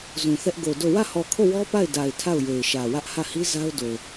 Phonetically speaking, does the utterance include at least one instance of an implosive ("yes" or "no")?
no